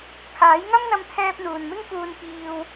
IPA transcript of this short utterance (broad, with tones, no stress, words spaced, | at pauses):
kʰaː˨˥jŋɐ˥mn̪ɐ˧mt̪ʰɛː˧p̚ n̪uː˨nmɪ˥ŋkuː˧n piː˧w